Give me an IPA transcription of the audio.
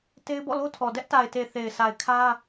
t e˦ ɪ̯ b ɔ̰˦˨ l o˦ tʰ ɔ˨ d ɛ˦ ʔ t a˨ ɪ̯ t e˨ θ e˨ ɪ̯ s a˨ ɪ̯ kʰ ä˦

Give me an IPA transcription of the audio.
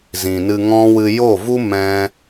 z ĩ˨ n ɨ˧ ŋ ɔ̃˦ w ɨ˧ j o˦˨ v u˦ m ɛ̃˦

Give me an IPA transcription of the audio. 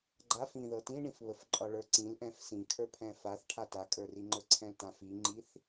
ɡ͡ǃ a f ĩ ð ɤ t ĩ ɳ ĩ f β ə f ǃʼ ɒ ɭ ə˞ ǀ ĩ l ʔ ɛ̃ f s ĩ kʰ ə˞ pʰ ɛ̃ f a θ ʈʰ a t a kʼ ə˞ r i ŋ͡ǃ ə˞ ǀʰ ɛ̃ l t ã f i ŋ͡ǃ i θ

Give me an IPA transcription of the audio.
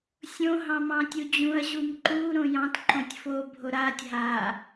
sʲ õ ɦ ɑ̃ m ɑ̃ tʲ u d͡ʑ ũ ɐ̯ ʑ u m ǃ u ɾ õ j ɑ̃ t ǃ õ tʲ f o bʱ o ɾ a tʲ ɦ a

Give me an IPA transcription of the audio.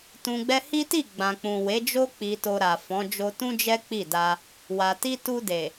t ũ˨ ɡ͡b ɛ˧ h i˦ t i˦˨ ɡ͡b ã˨ k͡p ũ˨ w e˨˦ d͡ʒ o˦ k͡p i˧ t o˧ ɾ a˨ f ɔ̃˨˦ d͡ʒ o˧ t ũ˦ d͡ʒ ɛ˦ k͡p i˦˨ d a˧ | w a˨ t i˧ t u˧ d e˨

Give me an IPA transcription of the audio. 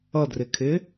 ʌ d r ɪ kʰ ɪ

